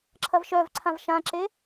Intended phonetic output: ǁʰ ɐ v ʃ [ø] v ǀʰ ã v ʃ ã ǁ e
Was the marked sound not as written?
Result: yes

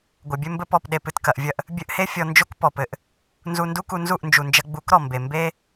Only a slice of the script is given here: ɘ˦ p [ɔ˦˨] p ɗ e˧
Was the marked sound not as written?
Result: no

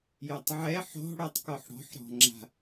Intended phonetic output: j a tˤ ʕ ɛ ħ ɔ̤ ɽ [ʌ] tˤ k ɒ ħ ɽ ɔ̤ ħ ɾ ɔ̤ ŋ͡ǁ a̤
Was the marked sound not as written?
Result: yes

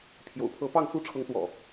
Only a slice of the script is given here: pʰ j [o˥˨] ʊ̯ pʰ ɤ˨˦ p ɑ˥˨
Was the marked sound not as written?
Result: yes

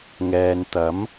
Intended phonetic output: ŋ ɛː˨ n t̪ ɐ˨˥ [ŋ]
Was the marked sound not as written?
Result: yes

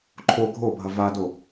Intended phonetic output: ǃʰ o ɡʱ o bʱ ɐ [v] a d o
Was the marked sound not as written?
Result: no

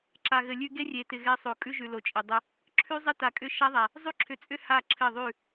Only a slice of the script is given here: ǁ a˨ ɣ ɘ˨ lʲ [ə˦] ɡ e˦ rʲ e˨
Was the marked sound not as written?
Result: yes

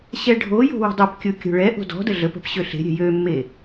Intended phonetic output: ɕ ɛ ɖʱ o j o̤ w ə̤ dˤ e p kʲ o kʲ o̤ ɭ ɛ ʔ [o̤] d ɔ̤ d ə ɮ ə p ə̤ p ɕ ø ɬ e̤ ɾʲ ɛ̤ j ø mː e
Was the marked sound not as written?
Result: no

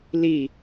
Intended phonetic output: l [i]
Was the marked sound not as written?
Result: no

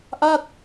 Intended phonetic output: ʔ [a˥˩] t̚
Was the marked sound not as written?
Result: no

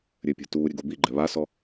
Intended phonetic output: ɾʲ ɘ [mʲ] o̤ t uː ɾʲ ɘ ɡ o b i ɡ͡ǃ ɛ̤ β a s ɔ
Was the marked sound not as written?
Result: yes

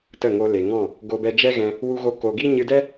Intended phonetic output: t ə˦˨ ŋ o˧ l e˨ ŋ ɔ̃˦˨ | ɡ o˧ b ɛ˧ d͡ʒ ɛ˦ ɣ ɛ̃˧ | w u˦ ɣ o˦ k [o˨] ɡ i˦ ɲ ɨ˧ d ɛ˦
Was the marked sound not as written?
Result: yes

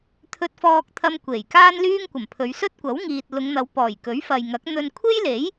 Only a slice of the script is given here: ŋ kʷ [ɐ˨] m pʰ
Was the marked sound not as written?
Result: yes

